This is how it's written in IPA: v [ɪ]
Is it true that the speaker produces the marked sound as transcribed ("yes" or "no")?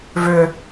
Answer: no